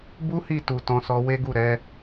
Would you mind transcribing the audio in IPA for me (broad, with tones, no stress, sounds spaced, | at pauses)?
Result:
b u˦ h i˦˨ t u˨ t ɔ̃˧ s ɔ˧ w e˦ ɡ u˦˨ ɾ ɛ˨˦